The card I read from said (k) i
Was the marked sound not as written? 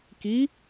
no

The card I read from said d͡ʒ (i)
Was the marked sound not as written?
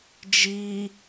no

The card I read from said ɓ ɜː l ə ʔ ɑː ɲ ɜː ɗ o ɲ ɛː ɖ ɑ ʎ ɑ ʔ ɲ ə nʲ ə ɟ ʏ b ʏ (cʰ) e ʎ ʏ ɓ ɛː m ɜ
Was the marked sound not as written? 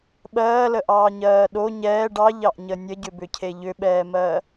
no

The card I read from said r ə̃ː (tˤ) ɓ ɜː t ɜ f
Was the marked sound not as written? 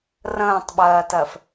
no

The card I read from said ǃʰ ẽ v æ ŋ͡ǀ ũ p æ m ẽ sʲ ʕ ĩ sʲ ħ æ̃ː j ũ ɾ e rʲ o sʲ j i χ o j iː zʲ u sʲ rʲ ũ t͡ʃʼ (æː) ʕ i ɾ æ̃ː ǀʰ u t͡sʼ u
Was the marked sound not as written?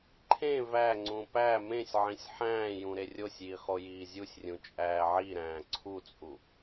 no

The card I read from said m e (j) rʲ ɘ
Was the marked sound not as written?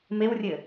yes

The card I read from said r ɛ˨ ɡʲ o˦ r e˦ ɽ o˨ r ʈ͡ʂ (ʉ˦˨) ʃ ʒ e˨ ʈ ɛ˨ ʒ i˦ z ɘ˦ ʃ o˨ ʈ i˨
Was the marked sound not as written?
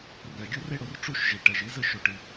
yes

